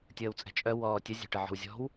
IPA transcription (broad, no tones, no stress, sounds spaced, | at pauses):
tʲ əː w t͡sʼ ɛ̤ t͡ʃʼ œ w ɔː tʲ ə zʲ ɛ̤ ʈ ə ʕ ɔ̤ w zʲ ɔ̤ w